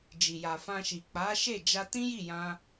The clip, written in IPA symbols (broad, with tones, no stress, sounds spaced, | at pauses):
d͡ʒ i˨ j a˨ f ã˧ ʃ i˨ k͡p a˨˦ ʃ e˦˨ d͡ʒ a˧ t ĩ˦ j i˦˨ j ã˧